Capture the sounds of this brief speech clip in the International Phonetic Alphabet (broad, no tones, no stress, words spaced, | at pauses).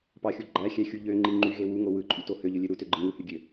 pɑxʲu ɡ͡ǃæxʲæxʲu ʎøŋ͡ǃi ŋ͡ǃyɣe wuŋo wɯǃʼyto høʎølʲø ɾutøɡ͡ǃɯ ŋuhyɡʲø